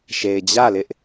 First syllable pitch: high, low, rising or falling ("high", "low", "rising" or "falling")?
low